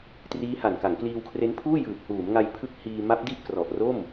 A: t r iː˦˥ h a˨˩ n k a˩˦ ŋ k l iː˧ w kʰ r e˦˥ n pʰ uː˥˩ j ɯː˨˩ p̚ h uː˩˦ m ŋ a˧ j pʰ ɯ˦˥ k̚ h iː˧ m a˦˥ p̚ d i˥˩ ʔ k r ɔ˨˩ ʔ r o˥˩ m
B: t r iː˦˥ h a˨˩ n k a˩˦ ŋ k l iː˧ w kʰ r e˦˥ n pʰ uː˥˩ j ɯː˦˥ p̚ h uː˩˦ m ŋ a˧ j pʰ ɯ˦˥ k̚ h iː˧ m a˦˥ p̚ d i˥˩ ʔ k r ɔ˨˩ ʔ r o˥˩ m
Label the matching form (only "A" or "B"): A